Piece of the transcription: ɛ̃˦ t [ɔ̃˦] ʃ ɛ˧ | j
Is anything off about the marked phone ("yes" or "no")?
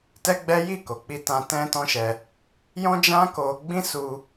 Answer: no